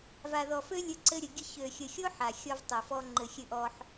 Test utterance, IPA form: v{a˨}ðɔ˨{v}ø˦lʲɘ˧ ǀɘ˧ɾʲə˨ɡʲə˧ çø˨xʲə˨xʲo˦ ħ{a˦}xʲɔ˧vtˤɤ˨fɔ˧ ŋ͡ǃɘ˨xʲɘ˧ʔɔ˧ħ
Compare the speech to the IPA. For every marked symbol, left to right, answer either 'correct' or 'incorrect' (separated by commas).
correct, incorrect, incorrect